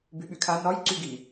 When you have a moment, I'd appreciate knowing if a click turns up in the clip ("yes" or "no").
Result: yes